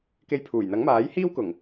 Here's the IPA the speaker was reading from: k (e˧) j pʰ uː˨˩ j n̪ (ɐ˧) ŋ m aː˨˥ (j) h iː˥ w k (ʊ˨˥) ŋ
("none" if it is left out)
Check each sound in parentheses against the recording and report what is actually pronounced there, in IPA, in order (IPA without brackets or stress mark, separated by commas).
e˧, ɐ˨˥, j, ʊ˨˩